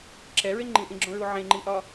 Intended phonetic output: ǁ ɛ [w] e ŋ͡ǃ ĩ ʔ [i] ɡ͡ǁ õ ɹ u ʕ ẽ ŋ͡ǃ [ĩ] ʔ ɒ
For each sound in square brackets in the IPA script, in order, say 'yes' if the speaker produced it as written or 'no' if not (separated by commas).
no, no, no